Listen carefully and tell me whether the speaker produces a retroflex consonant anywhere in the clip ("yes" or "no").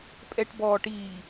yes